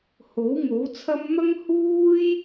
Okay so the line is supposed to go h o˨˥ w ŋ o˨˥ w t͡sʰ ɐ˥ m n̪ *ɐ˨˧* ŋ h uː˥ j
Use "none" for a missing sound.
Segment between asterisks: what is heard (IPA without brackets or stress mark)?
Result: ɐ˥